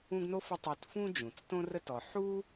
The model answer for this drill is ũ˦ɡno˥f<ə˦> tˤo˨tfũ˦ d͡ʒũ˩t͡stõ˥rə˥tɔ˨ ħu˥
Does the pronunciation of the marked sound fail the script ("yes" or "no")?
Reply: no